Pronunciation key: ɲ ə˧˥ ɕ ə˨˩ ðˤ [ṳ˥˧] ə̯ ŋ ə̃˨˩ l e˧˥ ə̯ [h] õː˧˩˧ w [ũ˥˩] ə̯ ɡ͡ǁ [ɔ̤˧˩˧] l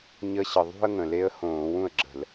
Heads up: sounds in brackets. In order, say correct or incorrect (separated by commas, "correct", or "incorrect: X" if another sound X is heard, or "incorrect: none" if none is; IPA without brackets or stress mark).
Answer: correct, correct, correct, incorrect: ə̤˧˩˧